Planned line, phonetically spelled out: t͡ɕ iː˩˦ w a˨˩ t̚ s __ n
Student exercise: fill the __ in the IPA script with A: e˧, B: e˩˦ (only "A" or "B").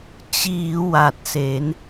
B